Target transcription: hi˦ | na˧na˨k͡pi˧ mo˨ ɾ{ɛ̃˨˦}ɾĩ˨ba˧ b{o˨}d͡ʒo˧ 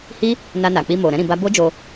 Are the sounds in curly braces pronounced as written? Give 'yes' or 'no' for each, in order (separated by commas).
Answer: no, no